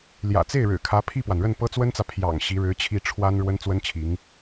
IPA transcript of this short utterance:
ljä̰˨˩t͡se˥˩ɪ̯ɻɻ̩˨˩kʰä˧˥ pʰi˥˩pwa˩nɻə˥˩n pɤ˥t͡swə˥nt͡sä˨ pʰjɑ̰˨˩ŋ ɕi˧˥ɻɻ̩˧˥t͡ɕʰi˥˩ ʈ͡ʂʰwa˥n ɻwə˥nt͡swə˥nt͡ɕʰi˧˥ŋ

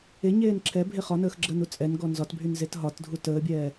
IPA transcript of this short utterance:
eɲeːn ǁʰɛbʱe χɒnəːxɡ͡ǁəːnu t͡sʼɛnɡɔ nzɒtbʱynzet ɦɒtdʱu təːbʲɛː

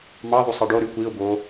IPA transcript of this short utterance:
mɑðˤu sˤiɖoɾy kʷiʊ̯ bo

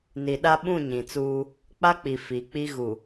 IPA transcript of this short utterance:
ni˨ɗa˦ ɓũ˦˨ɲĩ˨t͡suː˦ | k͡pa˦k͡pi˨ fi˨˦k͡pi˦ɣu˨

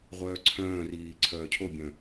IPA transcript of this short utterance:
ʁʷœːǀʰœ̃ːriː ǀʰœːcʰobʲœ̃

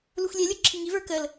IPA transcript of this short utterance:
luxʷlʲɛlʲo ǁʰiŋiv ə˞kəl

